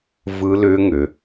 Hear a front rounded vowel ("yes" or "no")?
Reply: yes